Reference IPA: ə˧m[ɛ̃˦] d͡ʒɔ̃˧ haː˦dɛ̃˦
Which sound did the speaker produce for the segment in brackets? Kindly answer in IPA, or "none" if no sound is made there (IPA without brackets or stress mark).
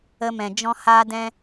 ɛ̃˨